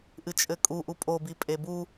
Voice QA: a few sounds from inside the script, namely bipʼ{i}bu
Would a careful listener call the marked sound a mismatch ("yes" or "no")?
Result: yes